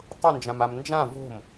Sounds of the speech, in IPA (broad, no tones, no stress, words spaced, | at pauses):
tˤʊnd͡ʒãmam nd͡ʒã vo̤m